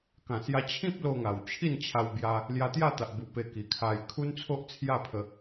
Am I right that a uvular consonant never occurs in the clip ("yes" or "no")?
yes